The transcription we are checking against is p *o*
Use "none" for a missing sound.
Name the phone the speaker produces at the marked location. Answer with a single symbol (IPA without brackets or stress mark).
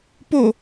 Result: o